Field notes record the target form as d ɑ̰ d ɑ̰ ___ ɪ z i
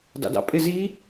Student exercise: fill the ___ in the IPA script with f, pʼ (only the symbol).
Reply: pʼ